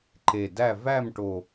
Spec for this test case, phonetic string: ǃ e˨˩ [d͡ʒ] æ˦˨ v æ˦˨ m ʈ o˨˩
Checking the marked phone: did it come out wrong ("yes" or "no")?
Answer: yes